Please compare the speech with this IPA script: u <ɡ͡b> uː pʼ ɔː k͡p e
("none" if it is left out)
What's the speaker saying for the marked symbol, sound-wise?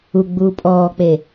ɡ͡b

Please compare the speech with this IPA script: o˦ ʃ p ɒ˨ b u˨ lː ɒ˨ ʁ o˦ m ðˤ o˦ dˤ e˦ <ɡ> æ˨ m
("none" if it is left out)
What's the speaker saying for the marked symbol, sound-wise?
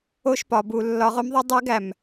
ɡ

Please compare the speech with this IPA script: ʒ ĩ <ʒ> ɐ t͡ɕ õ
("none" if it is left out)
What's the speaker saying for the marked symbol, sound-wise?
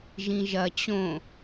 ʒ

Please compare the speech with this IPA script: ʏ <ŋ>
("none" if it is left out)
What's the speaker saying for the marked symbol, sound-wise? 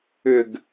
ɡ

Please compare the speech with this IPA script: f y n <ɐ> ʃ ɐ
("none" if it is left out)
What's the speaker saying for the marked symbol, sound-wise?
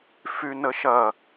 ə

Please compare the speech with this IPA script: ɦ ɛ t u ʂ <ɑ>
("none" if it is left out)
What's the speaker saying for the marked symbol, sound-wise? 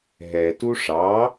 ɑ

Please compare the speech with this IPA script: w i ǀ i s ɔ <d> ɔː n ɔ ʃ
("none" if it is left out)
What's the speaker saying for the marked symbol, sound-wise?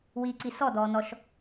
d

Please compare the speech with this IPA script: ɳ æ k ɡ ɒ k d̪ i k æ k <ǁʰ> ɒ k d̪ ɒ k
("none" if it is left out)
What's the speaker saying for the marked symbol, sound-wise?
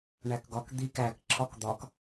ǁʰ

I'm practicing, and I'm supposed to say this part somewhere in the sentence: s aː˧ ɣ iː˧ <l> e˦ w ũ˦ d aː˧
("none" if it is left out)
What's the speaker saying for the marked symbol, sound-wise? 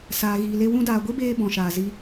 l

